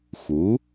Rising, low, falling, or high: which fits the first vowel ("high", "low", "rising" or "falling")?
rising